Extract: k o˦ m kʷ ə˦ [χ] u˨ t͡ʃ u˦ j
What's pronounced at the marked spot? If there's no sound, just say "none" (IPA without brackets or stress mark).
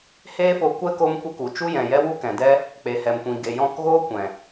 k